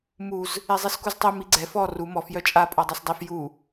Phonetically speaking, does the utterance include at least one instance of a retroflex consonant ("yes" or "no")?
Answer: no